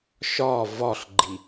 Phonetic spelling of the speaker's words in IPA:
ʃ ɒ v ɒ ɬ ɡ͡ǃ i

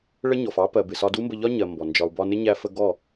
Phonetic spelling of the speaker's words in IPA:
ɭ ə˦ ɲ ɔ˨ f ɑ˦ p ɜ˨ b ɪ˨ s ɒ˧ d u˦ m b ə˧ ʎ ɒ˦ ɲ ɜ˨ m b ɔ˨ n d͡ʒ ɒ˨ u̯ b ɒ˧ n ɪ˦ ɲ æ˧ f ə˧ ɡ ɔ˦˨

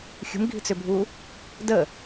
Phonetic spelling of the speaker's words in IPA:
xʲ ṳ m ɡʱ i̤ t͡s ʏ bʱ u | d ə

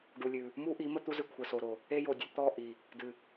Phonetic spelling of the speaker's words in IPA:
ɖ u˨ lʲ ʉ˨ | m u˦ ʔ i˨˦ m ə˦ t̪ u˦ z ɨ˨ kʷʰ ə˨ s o˨ ɾ o˨ | e˦ j o˨ dʲ ə˦ t̪ ɔ˦˨ ʔ i˨ | d ɨ˨

